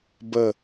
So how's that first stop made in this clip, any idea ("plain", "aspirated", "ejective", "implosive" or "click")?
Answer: plain